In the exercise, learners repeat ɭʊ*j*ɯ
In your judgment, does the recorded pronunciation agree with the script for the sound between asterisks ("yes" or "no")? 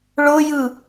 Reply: yes